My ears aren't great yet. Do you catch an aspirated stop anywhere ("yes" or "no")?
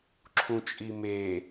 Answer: yes